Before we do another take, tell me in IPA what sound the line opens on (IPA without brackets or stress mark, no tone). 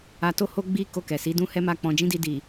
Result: a